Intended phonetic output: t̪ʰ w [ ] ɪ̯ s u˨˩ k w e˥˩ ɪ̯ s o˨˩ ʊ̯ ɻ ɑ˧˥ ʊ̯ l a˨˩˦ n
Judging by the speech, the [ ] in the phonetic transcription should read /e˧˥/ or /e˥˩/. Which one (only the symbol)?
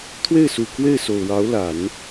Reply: e˥˩